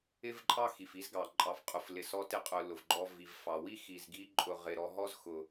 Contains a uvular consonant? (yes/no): yes